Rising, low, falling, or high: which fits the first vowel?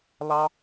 high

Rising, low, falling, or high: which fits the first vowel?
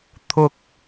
high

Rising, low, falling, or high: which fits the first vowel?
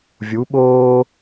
rising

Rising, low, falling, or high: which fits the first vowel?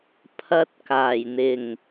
high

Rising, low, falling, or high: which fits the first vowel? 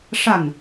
falling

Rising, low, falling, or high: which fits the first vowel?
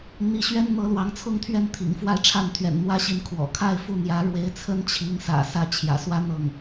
rising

